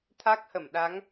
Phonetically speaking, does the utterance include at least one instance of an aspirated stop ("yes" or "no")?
yes